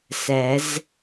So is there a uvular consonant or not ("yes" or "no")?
no